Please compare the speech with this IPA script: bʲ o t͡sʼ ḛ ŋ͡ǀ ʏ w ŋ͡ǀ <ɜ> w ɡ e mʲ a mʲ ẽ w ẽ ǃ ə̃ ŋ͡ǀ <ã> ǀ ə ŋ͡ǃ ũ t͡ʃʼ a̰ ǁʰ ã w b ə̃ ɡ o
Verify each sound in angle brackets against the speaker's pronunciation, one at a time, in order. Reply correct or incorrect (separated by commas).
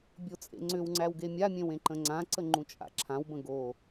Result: incorrect, correct